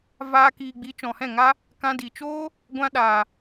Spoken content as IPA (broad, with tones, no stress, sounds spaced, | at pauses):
v aː˦ k iː˧ ɡ͡b i˨˦ t͡ʃ ɔ̃˨ h ɛ̃˦˨ ŋ a˦ | k ã˧ d i˨ t͡ʃ oː˦ | ɡʷ ã˧ ɗ aː˨